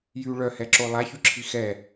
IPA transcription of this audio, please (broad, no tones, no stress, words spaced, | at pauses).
jy ɭœhɛǁo lˠaçyǁʰi xɛ